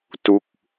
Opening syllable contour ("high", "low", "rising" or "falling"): falling